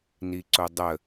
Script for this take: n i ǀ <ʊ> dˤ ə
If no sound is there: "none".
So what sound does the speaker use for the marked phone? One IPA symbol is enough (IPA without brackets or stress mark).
ʊ